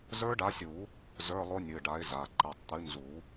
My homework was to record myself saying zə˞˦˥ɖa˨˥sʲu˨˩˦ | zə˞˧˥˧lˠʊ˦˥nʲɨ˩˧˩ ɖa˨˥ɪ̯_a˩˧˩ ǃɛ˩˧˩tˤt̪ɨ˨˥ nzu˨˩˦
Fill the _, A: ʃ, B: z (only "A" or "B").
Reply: B